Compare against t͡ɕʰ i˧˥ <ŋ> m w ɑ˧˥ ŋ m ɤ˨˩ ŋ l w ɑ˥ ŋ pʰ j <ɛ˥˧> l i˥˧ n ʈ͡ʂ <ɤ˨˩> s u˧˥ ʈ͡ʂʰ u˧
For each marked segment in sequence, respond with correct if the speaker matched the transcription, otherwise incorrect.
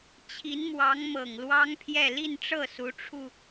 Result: incorrect, correct, incorrect

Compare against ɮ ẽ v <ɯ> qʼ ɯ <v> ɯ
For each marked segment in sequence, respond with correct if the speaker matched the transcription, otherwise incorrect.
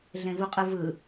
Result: incorrect, correct

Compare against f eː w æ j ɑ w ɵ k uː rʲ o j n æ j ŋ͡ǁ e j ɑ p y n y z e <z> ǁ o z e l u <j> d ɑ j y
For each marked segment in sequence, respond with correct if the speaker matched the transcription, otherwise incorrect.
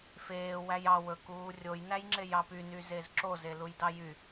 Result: correct, correct

